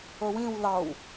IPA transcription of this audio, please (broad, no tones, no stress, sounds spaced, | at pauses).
o w ĩ w l ɑ w